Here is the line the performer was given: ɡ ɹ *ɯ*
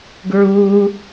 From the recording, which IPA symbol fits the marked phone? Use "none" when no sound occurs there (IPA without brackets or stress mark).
u